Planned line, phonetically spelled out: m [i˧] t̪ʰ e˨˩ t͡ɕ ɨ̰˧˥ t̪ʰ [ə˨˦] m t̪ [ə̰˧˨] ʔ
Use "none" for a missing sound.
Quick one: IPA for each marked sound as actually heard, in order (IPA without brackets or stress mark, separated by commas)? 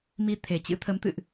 i˧, ə˨˦, ɨ̰˧˨